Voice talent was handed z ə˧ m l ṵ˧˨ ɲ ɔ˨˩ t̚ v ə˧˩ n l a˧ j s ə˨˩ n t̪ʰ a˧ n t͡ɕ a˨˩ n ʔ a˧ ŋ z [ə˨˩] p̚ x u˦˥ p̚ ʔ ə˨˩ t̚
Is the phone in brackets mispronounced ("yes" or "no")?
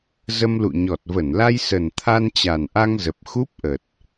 no